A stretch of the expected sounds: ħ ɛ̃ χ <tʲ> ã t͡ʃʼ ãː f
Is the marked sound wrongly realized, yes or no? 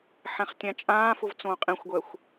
no